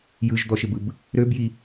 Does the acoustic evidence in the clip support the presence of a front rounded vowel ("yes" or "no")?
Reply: yes